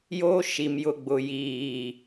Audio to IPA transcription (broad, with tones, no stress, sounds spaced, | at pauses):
j oː˦ ʃ i˨ m j ʊ˨ ɡ͡b ʊ˨ j iː˨